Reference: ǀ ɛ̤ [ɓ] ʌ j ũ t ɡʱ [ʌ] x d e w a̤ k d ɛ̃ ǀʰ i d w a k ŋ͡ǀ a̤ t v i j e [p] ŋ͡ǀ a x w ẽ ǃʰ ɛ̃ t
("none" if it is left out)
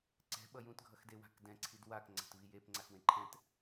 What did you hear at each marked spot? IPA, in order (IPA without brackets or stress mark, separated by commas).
ɓ, ʌ, p